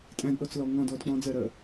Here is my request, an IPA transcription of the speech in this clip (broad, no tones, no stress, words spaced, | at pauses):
tʼæ̃dɗɔt͡slɔ ŋɔ̃dɔd k͡pɔ̃d͡zɜɾɜ